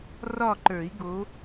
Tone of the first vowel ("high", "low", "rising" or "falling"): falling